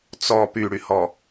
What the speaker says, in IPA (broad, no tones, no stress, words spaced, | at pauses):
t͡sɔ pyɽyhɔ